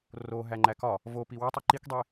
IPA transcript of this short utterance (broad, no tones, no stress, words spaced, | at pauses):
roɦæŋ͡ǃæ kɒ | vopi wutˤæ ǃikdˤi